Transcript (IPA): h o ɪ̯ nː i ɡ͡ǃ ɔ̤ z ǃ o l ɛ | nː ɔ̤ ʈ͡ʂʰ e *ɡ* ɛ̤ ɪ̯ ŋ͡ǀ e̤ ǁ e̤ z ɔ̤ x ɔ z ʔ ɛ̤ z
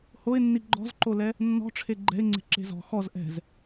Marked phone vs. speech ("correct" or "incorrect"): incorrect